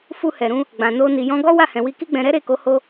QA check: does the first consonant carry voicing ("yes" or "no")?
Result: no